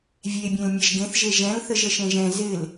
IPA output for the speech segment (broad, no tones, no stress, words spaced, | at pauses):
vʲebʲẽl mʲɛʒɡẽθʒe ʒɛ̃lθəʒ əʃẽʒɛ̃ zɪl